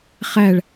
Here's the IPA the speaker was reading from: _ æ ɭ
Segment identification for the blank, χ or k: χ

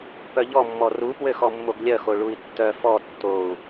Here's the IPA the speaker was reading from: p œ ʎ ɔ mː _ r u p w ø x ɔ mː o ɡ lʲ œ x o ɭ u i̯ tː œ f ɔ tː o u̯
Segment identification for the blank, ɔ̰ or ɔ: ɔ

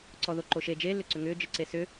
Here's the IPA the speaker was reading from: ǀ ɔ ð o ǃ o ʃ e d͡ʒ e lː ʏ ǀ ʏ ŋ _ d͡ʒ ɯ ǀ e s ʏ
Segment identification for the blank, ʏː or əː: ʏː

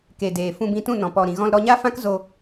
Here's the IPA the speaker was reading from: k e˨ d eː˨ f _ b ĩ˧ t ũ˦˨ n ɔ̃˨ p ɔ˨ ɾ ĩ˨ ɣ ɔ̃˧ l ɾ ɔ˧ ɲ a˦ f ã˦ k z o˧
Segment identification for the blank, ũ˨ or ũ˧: ũ˧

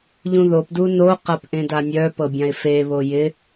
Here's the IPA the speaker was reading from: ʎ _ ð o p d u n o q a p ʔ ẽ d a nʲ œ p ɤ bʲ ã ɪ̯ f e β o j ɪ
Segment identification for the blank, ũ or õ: ũ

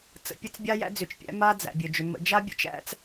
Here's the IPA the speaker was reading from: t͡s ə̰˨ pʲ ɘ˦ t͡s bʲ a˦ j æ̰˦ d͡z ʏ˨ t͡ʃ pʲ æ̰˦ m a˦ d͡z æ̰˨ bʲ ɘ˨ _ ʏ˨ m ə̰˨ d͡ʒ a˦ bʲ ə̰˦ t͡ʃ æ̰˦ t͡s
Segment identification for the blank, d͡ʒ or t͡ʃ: d͡ʒ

